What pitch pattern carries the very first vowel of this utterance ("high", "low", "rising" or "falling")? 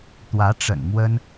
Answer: rising